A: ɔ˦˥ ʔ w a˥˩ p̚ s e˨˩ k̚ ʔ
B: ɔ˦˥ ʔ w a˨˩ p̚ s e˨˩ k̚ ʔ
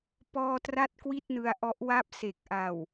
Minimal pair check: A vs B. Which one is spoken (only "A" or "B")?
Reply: A